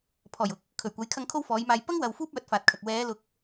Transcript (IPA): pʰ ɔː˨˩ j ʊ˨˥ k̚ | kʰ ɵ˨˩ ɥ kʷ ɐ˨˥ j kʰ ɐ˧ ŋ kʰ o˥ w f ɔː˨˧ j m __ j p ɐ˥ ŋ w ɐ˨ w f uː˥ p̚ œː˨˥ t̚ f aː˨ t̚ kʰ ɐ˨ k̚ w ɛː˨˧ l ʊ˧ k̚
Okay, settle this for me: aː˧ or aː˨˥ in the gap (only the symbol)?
aː˧